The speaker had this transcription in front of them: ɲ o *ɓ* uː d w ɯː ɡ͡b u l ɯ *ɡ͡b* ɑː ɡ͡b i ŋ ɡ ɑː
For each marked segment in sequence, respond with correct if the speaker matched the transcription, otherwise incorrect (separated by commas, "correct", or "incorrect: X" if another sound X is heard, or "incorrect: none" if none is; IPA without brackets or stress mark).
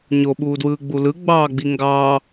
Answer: correct, correct